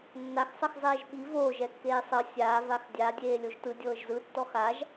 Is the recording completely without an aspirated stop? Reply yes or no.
yes